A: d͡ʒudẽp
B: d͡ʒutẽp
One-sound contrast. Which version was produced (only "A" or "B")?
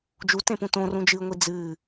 B